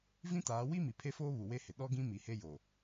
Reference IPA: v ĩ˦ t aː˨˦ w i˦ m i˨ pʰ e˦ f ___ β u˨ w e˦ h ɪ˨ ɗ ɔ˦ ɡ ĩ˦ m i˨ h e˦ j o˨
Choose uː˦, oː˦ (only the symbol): oː˦